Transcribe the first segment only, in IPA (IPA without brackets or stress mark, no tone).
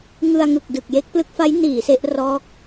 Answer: ŋ